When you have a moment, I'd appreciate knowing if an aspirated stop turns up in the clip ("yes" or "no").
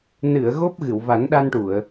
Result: no